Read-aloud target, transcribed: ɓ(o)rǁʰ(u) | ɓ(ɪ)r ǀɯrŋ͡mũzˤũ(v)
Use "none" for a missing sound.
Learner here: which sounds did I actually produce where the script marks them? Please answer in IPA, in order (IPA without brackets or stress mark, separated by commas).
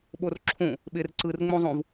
o, ũ, ɪ, v